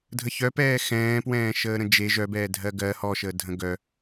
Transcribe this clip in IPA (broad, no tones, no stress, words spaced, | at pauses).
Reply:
dʱəçœpɛː xɛ̃ːpwɛ̃ːʃəːɾə̃ d͡ʒe ʒœbɛːdʱɜ ɡɜ hɔʃəːdʱə̃ ɡœ